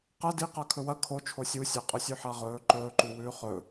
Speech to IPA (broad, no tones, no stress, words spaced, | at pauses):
qɐ diqa kʰɵwɐ kʰo t͡ʃʰosʲusʲa qʼɵsʲʉħaʁɵː ǃɵːǃu wʉːχɵ